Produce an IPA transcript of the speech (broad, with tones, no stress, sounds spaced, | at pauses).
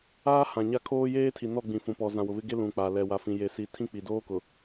aː˦ h ã˨ ɲ a˦ kʰ oː˦ j eː˦ tʰ i˨ n ɔ˦˨ ɡ͡b ĩ˨ f ũ˨ p ɔ˨ z ã˨ w ʊ˨ β ɪ˦ ɡ e˦ l ũ˨ k͡p a˨ l ɛ˨ w a˨ f ĩ˨ j e˨ s i˨˦ tʰ ĩ˦ k͡p i˨ d oː˦ k ʊ˨